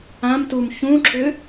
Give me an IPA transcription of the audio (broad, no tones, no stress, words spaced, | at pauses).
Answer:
ãm tum çũǁʏ